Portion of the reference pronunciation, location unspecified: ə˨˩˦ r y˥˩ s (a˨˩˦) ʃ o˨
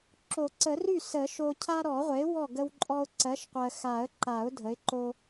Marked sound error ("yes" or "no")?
yes